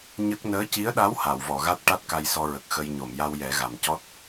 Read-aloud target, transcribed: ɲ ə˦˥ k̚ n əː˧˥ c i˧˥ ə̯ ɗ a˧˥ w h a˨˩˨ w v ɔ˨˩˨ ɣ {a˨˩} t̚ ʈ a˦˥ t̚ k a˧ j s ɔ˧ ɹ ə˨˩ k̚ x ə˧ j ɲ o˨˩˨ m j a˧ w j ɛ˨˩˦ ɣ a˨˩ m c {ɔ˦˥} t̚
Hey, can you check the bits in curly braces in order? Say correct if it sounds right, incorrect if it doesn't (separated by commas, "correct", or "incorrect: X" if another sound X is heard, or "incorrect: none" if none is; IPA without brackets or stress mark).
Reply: incorrect: a˦˥, correct